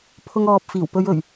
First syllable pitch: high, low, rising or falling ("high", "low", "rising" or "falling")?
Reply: high